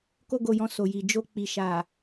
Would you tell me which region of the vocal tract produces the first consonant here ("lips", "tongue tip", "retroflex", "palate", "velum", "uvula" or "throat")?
velum